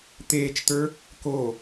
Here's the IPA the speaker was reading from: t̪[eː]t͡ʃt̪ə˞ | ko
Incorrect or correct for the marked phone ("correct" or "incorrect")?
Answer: correct